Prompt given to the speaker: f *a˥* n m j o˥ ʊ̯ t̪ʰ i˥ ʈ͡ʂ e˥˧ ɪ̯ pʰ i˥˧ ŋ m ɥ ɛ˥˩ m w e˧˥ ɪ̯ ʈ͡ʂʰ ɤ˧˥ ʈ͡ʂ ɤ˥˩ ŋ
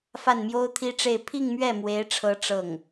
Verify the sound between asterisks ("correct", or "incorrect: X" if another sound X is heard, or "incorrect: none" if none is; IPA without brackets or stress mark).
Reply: incorrect: a˥˩